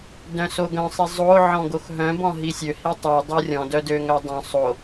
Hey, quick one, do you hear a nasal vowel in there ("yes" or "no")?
yes